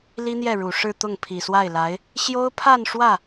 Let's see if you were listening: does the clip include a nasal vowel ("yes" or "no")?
no